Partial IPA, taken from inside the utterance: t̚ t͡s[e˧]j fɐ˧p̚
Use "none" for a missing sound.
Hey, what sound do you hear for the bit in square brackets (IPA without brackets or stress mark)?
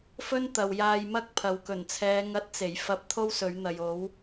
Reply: e˨˩